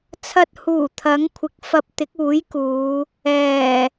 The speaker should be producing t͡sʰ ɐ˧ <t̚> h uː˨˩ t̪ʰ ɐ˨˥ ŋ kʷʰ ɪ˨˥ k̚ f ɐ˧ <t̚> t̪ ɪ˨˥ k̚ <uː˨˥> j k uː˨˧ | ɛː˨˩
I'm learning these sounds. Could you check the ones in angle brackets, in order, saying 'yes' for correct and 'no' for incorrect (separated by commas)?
yes, no, yes